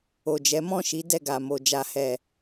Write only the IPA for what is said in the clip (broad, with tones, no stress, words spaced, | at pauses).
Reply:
o˨d͡ʒɛ˨˦mɔ̃˦˨ʃi˨˦ dɛ˦˨ɡa˨mo˨ d͡ʒa˨hɛ˨